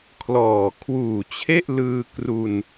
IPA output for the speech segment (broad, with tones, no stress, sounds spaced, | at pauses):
kʰ l ɔː˨˩ kʰ w uː˨˩ t͡ɕʰ e˥˩ ʔ l ɯː˧ k r u˧ n